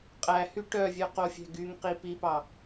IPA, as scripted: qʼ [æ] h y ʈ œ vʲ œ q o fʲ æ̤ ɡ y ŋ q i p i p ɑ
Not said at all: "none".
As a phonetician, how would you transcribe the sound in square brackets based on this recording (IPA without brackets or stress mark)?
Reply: æ